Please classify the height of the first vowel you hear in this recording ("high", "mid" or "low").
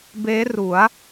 mid